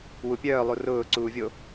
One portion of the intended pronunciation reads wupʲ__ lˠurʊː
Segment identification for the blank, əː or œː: œː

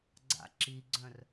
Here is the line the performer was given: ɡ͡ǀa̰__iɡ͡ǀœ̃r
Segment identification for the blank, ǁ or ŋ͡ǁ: ǁ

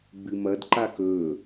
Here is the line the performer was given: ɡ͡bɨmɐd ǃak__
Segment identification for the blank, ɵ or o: ɵ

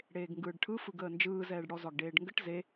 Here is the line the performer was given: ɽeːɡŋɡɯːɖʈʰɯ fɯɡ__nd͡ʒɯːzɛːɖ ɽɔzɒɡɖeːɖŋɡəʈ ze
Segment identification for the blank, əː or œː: əː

